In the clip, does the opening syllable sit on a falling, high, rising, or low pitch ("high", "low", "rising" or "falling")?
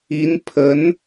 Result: rising